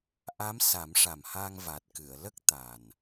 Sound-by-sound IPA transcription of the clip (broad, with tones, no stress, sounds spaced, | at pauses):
ʔ a˧˥ m s a˨˩˦ m ʂ a˨˩ m h a˧ ŋ v a˨˩ t̚ k ɨ˨˩˨ ə̯ l ə˦˥ k̚ t̪ a˨˩ n